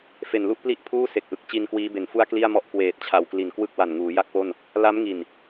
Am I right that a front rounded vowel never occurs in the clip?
yes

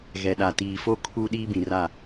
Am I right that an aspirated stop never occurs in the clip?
no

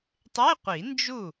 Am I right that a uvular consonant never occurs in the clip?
no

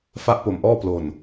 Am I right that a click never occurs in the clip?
yes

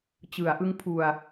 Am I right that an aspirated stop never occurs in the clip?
no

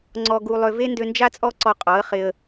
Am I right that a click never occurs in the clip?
no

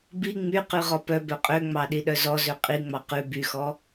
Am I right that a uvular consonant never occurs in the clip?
no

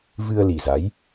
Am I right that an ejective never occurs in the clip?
yes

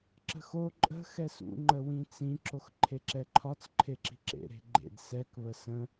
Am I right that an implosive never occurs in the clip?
yes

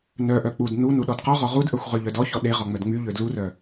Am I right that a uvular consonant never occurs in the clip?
no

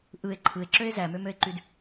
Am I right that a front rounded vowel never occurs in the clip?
no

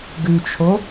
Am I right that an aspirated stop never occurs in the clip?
no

